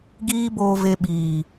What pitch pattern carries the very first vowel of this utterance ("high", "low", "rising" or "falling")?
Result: high